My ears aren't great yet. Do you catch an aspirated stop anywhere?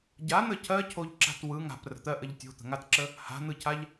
yes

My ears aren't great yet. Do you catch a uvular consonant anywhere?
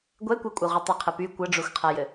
yes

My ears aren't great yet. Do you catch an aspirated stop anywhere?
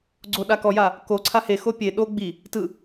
yes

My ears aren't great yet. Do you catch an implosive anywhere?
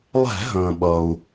yes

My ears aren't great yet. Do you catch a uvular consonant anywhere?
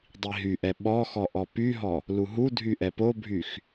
no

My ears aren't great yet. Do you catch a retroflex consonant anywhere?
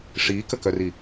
yes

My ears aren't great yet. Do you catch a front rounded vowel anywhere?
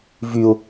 yes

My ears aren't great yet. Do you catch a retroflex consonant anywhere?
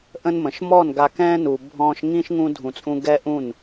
no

